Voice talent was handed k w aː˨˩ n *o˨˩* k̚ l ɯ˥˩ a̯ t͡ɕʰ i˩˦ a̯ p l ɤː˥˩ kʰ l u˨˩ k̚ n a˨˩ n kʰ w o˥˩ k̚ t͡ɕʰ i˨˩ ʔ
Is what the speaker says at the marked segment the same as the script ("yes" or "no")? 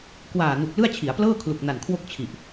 no